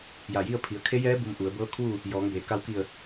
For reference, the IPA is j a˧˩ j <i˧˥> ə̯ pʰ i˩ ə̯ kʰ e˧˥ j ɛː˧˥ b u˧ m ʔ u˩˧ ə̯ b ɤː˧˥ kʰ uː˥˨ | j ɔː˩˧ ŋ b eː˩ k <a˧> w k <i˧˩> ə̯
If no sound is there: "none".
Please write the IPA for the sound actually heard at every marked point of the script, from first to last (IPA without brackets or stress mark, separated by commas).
i˥˨, a˧, i˧˩